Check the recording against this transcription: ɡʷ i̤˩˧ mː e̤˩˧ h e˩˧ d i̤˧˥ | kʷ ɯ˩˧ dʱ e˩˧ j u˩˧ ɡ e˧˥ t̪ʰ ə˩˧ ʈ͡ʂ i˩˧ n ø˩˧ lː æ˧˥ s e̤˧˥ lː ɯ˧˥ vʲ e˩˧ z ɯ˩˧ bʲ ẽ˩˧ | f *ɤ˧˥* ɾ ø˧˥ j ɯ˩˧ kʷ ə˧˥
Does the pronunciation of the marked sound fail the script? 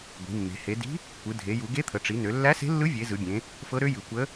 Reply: no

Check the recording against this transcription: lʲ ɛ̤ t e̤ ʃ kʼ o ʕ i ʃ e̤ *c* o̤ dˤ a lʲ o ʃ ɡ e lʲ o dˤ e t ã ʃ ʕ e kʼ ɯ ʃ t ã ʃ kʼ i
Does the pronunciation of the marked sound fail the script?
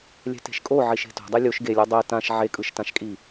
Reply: yes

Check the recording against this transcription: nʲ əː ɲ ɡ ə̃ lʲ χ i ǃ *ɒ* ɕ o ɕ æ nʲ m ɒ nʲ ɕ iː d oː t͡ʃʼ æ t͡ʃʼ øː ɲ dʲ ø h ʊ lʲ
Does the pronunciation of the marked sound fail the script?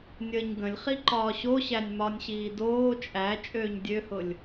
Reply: yes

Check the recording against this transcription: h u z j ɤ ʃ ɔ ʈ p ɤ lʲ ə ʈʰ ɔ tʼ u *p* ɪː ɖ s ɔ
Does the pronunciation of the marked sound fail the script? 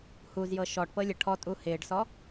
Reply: yes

